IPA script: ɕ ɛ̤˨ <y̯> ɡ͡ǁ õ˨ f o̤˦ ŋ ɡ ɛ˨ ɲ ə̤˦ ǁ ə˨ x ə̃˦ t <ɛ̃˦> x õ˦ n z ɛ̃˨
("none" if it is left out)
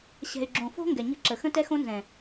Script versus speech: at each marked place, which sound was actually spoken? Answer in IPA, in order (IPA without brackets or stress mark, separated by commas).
y̯, ɛ˦